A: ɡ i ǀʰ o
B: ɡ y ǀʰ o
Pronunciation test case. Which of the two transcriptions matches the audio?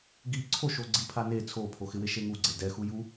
A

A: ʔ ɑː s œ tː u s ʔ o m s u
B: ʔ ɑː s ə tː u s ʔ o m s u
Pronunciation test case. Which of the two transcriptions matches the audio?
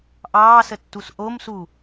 B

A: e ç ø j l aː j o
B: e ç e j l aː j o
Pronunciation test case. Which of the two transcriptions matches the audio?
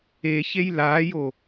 B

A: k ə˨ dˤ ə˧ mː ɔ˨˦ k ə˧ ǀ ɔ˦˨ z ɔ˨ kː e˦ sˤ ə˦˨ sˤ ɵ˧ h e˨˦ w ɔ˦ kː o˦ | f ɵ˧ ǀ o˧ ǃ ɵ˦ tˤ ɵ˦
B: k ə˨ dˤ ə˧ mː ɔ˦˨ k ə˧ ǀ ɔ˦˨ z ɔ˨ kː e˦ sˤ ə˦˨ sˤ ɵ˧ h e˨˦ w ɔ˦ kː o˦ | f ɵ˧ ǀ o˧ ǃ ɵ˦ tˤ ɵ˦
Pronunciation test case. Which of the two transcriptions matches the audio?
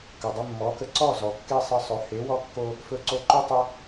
A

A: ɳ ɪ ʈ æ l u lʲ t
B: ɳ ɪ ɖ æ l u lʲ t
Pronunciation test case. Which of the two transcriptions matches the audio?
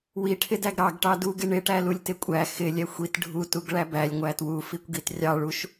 A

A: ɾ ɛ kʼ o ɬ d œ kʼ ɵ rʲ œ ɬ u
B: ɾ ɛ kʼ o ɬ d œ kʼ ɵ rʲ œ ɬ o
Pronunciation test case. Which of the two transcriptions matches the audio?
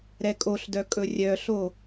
B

